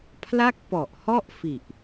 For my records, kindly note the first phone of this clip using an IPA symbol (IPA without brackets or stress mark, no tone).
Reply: pʰ